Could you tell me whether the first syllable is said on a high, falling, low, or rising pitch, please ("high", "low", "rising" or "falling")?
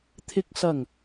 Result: low